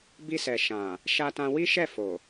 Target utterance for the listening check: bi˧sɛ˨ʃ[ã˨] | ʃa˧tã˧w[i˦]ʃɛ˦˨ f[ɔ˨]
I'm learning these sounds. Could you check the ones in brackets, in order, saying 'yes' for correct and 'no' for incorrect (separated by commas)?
yes, yes, no